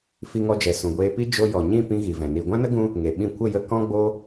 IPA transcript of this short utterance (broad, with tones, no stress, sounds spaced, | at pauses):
f i˧ ŋ ɔ˧ d͡ʒ ɛ˨ s ũ˨ ɡʷ eː˧ p i˦ d͡ʒ o˧ j ɔ˨ ɲ ĩ˦˨ p ĩ˦ ɣ i˨ v ɛ̃˨ n i˨ ɡʷ ã˦ n ə˦ ɡ ũ˦ | ŋ e˨ ɓ ĩ˦˨ kʷ ə˦˨ j ə˧ k ɔ̃˦ ɡ͡b o˦